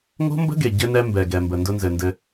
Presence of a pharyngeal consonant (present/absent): absent